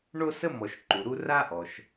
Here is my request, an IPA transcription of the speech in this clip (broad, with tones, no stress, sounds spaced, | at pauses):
ɳ o˥ s ə˥ m ɔ˨ ʃ ǃ u˩ ɾ u˥ r a˥ ʔ ɔ˩ ʃ